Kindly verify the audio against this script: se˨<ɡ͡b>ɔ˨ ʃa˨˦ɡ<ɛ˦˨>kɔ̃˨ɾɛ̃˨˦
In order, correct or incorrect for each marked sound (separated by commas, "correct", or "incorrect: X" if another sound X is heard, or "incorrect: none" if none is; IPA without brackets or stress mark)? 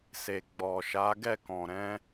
correct, correct